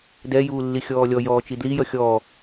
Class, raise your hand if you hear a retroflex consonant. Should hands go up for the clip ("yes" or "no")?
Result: no